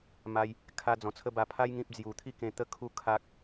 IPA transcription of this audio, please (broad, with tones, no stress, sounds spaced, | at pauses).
m a˧ j | kʰ a˧ d͡z ɔ̃˨˩ t͡sʰ ə˦ b a˧ pʰ a˦ j ŋ ĩ˦ p̚ d͡z j u˨˩ t̪ʰ i˥˧ k ẽ˧ t̪ ə˦ kʰ u˥˧ kʰ a˦ k̚